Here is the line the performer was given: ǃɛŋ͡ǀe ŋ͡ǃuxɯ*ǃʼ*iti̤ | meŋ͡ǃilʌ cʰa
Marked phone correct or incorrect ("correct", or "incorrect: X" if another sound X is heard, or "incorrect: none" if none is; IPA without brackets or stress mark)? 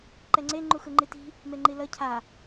incorrect: ŋ͡ǃ